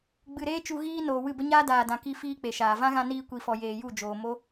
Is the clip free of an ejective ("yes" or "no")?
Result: yes